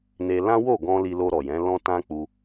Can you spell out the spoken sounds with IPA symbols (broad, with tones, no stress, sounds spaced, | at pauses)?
n e˧ l ã˦ w o˦˨ ɡ ɔ̃˧ l i˧ l o˧ ɾ ɔ˨ j ɛ̃˨˦ l ɔ̃˦ t ã˦ k͡p u˧